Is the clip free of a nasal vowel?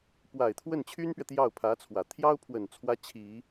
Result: yes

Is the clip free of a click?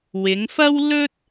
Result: yes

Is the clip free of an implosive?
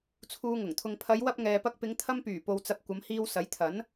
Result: yes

